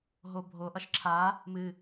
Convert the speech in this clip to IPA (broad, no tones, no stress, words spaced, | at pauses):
ɦobʱoʔʌʃ ǁʰa | mɨ